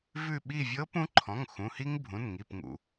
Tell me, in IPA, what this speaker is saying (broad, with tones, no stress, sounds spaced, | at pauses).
v ʉ˦˨ ɓ i˦˨ vʲ ɤ˧˥ p ũ˧˥ ǃʰ ɔ̃˩˧˩ ŋ x ũ˩˧˩ h i˥ ŋ bʱ ũ˩˧˩ n ŋ i˩˧˩ p ŋ ṵ˩